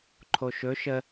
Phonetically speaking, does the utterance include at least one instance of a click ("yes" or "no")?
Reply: yes